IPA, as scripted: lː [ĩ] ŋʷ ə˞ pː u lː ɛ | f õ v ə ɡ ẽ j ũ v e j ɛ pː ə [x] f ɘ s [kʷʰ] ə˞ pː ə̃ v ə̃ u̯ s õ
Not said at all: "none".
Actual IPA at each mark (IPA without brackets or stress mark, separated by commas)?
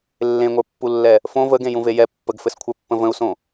ẽ, ɡ, kʷʰ